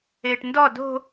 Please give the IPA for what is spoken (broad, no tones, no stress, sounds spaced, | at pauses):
eː ʈ n d ɔ d o̤